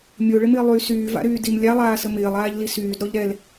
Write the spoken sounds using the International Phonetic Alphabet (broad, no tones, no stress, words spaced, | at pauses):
mʲoɭɪmɪː lˠy syːva̰ɾyːdim lʲalˠaːsə mɪːlˠaːʎli syːdɾɔʎ ɾɛl